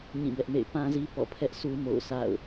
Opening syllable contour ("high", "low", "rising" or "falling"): falling